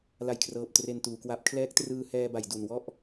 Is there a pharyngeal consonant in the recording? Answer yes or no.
no